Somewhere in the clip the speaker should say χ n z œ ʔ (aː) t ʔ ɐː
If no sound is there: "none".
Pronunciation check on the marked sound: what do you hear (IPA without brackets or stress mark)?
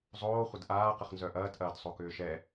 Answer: ɐː